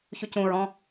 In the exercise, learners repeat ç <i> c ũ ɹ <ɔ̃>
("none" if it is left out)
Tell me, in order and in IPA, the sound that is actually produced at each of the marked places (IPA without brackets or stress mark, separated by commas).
y, ɔ̃